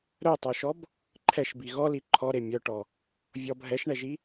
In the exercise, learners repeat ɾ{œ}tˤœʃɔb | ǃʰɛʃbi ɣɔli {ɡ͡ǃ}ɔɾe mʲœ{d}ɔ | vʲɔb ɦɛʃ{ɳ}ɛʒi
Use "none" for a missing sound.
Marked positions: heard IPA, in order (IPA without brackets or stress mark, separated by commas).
œ, ǃʰ, ʈ, ɳ